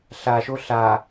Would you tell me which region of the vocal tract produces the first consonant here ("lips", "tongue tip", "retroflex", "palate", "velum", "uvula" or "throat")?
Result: tongue tip